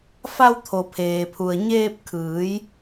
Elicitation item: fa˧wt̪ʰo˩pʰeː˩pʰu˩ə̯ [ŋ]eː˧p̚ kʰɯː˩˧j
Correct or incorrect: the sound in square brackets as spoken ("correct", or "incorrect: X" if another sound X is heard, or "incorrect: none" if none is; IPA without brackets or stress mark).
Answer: incorrect: ɲ